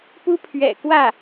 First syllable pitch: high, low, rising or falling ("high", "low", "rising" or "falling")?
high